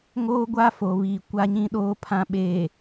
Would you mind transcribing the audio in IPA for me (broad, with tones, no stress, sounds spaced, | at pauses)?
ŋ oː˦ ɡʷ a˦ f o˨ β iː˨ kʷ a˨ ɲ ĩ˨ ɗ oː˨ pʰ ã˨ ɓ e˨